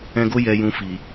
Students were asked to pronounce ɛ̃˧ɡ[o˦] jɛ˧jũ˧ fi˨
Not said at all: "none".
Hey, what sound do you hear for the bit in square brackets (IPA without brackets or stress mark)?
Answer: o˦